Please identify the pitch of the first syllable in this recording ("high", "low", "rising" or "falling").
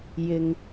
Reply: low